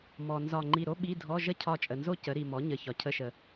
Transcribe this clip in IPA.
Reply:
m ɔ˨ n z ɒ˦˨ ŋ͡ǃ i˦˨ ɾ o˥ ɓ i˧˥˧ dʱ ɔ˧˥˧ ʒ ə˥ cʰ ɒ˦˨ t͡ʃʼ ə˨ n z o˥ c ə˩˥ ɾ i˨ m ɔ˩˥ ɲ ə˨ ç ɒ˩˥ cʰ ə˧˥˧ ʃ ə˨

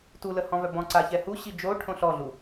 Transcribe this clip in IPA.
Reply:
t u l ə h ɔ̃ v œ b ɔ̃ ǀ a ç ɛ h u ɕ i d͡ʒ o ʈʰ õ ɬ ɔ ɮ u

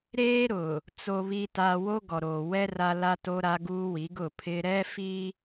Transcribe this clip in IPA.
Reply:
ɾ eː˦ ɾ ʊ˨ | t͡s o˨ β i˨ t a˨ w o˦ ɡ ɔ˨ ɾ oː˨ w ɛ˦ r a˦ l a˦ t o˦ ɾ a˦ ɡ uː˦ w i˨˦ ɡ ʊ˦˨ pʰ ɪ˦ ɾ ɛ˦ f i˦

